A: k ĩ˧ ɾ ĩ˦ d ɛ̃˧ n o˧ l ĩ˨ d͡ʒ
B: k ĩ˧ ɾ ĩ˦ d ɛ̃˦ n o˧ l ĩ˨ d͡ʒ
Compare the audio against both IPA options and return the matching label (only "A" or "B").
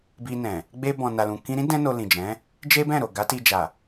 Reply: B